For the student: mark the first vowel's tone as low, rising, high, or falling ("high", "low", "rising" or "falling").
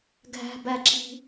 high